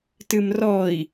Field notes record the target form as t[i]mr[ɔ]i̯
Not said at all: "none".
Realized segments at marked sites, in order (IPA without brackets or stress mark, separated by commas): ɨ, ɔ